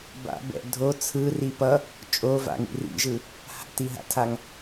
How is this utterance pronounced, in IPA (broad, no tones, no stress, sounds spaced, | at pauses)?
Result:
b a̰ b ɛ̰ dʱ o t͡sʰ ɯ r i p ʌ | t͡ʃʼ o v a̰ ŋ ḭ r ḭ ʒ ɯ | h a̰ t i ɦ a̰ tʰ a ŋ